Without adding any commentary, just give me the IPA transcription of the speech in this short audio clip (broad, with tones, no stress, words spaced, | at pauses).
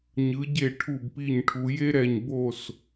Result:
ɲɯ˩˧ɟe˧˩ ʈʰu˧˩bpi˧˩ɲʈʰu˩˧ je˥ɾɛ˧˩ɲ bo˧˩s